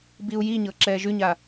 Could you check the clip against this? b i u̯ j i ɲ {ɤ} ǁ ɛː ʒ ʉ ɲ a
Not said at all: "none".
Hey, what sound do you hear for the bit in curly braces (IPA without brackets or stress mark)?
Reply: ɤ